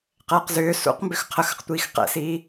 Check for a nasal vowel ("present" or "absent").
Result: absent